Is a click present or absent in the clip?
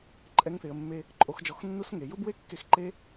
present